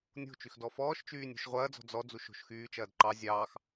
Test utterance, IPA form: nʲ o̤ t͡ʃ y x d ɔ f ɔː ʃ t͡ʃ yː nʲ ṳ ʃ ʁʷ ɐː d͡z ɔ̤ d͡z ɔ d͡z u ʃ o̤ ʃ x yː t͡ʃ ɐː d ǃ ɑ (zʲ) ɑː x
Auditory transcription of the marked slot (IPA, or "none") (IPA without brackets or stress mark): zʲ